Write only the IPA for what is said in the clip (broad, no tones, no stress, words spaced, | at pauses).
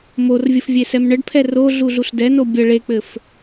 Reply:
morvʲəf vʲesɛmɳəɖpʰɛ ro ɮuɮuɬdɛno bʲə ɭek͡pɘf